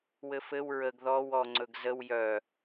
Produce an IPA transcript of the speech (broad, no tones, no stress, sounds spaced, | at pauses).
w ɘ f ɘ w ɹ ə ɡ ð ɔ w ɔ ŋ͡ǀ ɵ ɡ z ə w j œ